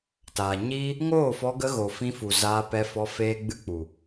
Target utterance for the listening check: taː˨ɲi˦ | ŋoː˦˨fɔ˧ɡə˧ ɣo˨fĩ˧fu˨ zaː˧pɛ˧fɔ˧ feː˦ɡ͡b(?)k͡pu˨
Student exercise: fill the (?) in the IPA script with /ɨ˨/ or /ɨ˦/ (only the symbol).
ɨ˦